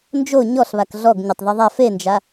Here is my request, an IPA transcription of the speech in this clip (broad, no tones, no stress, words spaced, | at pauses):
nd͡ʒo ɲɔɬβak ɮɔɡ ɲʊtˤðeðˤa fend͡ʒa